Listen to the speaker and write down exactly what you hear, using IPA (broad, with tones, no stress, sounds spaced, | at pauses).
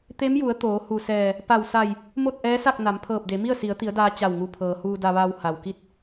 t̪ e˧˥ m j u˩˧ ə̯ t̪ oː˩˧ h u˧˩ s ɛː˧˩ | p a˧˩ w s a˧˩ j | m o˥˨ t̚ ʔ ɛː˧˥ s a˥˨ k̚ n a˩˧ m pʰ ɤː˧˩ p̚ d e˩˧ m i˥˨ ə̯ s i˩˧ ə̯ t̪ i˩˧ ə̯ d aː˧ t͡ɕ a˧˩ w ŋ u˧˩ pʰ ɤː˩ h uː˧ d a˧ ʋ aː˧ w h a˩ w k i˥˨ t̚